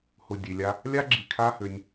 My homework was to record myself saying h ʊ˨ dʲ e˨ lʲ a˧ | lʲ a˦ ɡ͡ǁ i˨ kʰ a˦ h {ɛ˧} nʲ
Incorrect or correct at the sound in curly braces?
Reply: incorrect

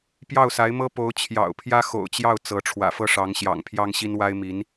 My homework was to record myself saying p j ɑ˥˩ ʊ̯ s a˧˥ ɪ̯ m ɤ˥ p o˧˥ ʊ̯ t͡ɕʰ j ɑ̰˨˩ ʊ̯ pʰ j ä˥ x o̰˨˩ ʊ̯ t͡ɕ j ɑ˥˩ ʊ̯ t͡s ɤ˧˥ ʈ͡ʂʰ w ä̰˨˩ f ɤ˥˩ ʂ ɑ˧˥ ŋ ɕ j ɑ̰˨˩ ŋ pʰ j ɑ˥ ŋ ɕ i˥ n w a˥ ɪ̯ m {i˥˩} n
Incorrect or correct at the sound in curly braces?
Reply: incorrect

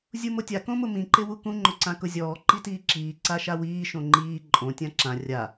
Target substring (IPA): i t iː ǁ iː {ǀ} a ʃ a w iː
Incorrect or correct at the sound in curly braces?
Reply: correct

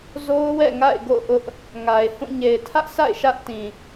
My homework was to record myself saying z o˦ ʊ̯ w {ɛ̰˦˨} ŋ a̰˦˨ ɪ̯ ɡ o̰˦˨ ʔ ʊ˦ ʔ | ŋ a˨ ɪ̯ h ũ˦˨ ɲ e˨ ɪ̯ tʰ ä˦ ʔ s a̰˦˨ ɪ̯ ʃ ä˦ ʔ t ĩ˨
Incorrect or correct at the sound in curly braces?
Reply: correct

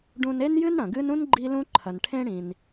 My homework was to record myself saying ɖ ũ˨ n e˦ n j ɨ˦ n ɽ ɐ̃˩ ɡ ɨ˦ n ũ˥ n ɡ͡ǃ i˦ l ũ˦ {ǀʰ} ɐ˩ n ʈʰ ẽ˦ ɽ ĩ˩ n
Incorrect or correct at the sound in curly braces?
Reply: incorrect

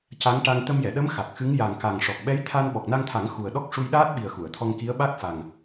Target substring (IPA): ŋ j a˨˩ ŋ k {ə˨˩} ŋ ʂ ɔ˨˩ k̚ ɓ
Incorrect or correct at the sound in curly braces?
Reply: incorrect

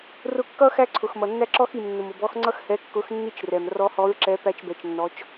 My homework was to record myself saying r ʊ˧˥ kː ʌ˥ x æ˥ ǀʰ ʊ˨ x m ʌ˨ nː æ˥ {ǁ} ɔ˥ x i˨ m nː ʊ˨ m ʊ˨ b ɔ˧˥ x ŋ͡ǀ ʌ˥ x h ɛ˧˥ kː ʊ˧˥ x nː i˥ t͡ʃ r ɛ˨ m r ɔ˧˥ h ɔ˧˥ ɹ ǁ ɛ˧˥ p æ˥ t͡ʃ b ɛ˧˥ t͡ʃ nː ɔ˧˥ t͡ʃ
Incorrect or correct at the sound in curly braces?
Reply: correct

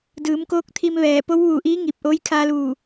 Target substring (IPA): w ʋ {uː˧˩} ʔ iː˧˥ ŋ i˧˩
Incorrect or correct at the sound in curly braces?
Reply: correct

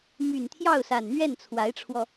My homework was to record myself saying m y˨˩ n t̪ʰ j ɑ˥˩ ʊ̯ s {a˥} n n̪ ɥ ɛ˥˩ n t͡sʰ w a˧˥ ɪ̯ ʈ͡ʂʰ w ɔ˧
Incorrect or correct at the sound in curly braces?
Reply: incorrect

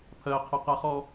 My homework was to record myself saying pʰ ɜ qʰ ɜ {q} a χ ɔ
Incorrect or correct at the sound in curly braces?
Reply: correct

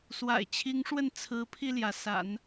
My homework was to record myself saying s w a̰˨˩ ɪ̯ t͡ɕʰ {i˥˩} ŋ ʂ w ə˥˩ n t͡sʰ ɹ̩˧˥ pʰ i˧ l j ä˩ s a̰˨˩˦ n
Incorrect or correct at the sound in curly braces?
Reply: incorrect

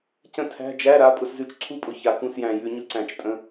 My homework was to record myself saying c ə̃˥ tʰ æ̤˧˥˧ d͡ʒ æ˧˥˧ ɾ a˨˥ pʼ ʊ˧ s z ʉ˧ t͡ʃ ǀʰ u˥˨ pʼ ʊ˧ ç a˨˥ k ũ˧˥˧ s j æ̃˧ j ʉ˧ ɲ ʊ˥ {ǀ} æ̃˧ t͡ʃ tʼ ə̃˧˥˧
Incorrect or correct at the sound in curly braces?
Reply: correct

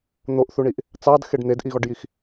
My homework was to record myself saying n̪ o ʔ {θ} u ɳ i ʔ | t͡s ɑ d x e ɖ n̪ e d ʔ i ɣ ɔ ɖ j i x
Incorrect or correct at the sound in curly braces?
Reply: correct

